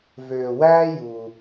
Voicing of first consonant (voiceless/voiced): voiced